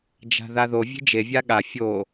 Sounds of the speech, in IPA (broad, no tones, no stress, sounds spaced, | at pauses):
d͡ʒ a̤ ð a ð o vʲ e̤ d͡ʒ e vʲ a ɠ a fʲ o